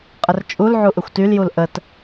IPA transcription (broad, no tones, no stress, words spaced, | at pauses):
qʼərt͡ʃʼul ʕuʔøxʷtyl julʔət